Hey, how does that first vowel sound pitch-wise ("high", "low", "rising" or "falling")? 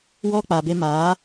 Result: high